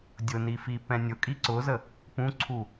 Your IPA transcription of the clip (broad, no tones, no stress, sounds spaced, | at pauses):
dʲ ʊ n i f i p ɛ̃ nʲ ʊ kʼ i ǀ ʊ z ə | p ũ ǀʰ u